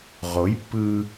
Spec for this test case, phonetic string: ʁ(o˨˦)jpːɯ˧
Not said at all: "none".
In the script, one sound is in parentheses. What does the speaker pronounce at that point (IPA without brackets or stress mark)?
o˨˦